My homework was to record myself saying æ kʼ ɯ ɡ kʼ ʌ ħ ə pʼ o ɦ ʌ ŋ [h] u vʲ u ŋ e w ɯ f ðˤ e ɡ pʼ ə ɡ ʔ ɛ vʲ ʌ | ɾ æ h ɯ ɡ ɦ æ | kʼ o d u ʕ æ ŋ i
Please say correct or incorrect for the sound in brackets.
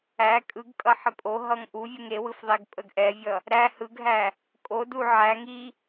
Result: incorrect